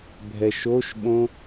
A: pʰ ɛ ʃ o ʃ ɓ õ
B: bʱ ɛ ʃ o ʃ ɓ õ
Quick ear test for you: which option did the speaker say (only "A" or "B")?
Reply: B